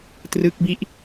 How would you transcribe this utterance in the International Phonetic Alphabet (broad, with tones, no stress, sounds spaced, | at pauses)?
t r ɯ˦˥ k̚ b i˦˥ ʔ